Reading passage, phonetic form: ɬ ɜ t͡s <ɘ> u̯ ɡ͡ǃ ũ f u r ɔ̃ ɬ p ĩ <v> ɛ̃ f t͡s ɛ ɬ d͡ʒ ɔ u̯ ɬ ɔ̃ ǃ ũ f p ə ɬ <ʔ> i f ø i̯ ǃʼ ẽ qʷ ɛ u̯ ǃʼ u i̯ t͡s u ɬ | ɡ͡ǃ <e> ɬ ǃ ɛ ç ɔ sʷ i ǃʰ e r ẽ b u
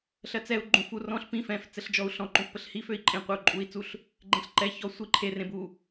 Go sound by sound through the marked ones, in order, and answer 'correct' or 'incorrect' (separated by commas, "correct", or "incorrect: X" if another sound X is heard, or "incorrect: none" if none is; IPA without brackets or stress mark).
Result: incorrect: ɛ, incorrect: f, incorrect: h, incorrect: ẽ